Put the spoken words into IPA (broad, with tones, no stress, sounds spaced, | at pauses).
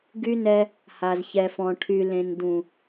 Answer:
ɡ y˦ n ɛ˦ | h a˨ z ç ɛ˨ f ɔ̃˨ ʈʰ y˨ l ẽ˨ n d ũ˨